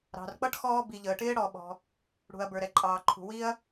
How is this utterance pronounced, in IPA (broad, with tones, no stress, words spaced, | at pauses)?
ɾɑ̤˩rk͡pʌ˥ʈ xɔː˥ bi˩ ʎəː˩ʈɪː˥ ɽɔ˩ɓɔ̤˩ | ɽṳ˩ɐ̯ bə˞˩ɾɛ˩ǃʼɑː˩ǃʰṳ˩ wi˥ɐ̯